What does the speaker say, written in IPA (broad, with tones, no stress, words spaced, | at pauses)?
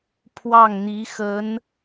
pʰwɑ˥˩ŋn̪i˧˥xə˧˥n